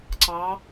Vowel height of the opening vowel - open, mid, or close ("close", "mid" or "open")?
open